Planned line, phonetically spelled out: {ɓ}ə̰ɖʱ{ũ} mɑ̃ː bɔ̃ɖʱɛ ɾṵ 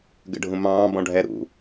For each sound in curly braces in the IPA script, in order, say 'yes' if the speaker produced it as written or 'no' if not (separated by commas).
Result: no, yes